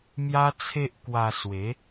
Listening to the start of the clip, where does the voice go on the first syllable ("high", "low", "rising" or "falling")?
high